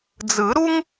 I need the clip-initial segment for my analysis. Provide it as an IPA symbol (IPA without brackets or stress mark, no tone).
d͡z